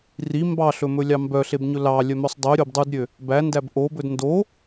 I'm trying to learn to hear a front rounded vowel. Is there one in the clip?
yes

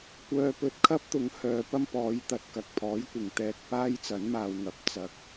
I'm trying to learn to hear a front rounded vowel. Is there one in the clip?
yes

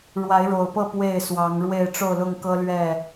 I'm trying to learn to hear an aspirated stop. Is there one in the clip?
no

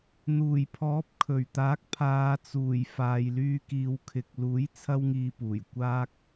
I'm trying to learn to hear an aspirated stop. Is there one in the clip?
yes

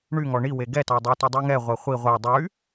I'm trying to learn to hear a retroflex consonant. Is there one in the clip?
yes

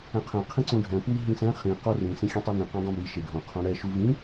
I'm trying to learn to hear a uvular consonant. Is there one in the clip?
yes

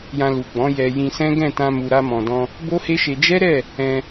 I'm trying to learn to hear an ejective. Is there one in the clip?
no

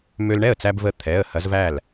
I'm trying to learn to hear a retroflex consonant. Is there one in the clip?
yes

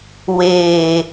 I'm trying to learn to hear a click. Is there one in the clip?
no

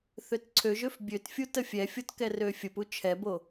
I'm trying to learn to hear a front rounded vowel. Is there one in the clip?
yes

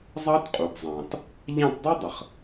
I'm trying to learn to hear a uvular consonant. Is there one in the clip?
yes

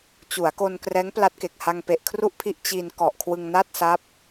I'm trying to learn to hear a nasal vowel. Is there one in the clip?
no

